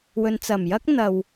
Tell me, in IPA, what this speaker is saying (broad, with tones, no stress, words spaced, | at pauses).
wɵ˨n t͡sɐ˨˩mjɐ˥k̚n̪ɐ˨w